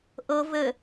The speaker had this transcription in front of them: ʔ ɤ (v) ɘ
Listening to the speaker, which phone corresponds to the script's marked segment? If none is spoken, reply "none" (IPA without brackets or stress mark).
v